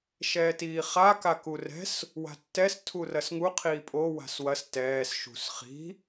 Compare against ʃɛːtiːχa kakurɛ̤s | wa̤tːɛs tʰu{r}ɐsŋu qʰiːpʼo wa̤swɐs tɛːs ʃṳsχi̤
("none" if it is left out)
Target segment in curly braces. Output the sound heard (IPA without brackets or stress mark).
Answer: r